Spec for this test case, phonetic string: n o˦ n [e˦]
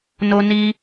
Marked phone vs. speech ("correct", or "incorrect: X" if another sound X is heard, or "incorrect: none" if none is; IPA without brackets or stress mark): incorrect: i˦